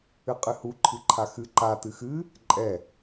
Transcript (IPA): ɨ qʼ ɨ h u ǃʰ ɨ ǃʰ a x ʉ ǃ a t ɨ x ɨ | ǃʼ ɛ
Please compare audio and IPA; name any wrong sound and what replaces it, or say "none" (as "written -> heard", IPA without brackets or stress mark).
ʉ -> ɨ